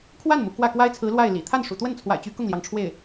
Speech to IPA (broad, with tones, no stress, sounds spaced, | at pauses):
kʰ w a˥˩ n m u˩ k w ä˥˩ k w a˥ ɪ̯ t͡sʰ ɹ̩˧˥ l w a˥˩ ɪ̯ l ḭ˨˩ t̪ʰ a˥˩ n ʂ ṵ˨˩ t̪ w ə˥˩ n t͡sʰ w a̰˨˩ ɪ̯ t͡ɕ y˧˥ k ʊ˥˩ ŋ l j ɑ˩ ŋ ʈ͡ʂʰ w e˥˩ ɪ̯